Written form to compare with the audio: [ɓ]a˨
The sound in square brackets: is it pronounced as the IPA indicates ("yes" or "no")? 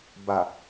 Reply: no